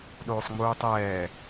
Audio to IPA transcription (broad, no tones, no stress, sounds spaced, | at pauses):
ɗ oː sˤ ŋ͡m uː tˤ ɛː